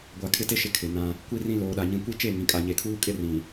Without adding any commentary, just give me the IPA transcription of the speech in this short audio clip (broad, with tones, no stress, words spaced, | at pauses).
ɡʷa˨kʰɪ˦te˦ʃɪ˨ kʰɪ˨nã˦ | kʷi˦rĩ˦ loː˨ɗa˨ ɲĩ˨kʷi˦t͡ʃe˦˨ ŋĩ˨kʼa˨ɲe˨kʰuː˦ kʼɪ˦rĩ˨